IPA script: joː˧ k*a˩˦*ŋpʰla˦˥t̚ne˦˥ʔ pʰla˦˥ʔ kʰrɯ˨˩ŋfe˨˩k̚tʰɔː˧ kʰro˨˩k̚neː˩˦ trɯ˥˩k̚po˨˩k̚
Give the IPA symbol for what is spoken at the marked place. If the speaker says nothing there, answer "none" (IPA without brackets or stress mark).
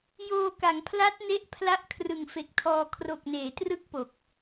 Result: a˩˦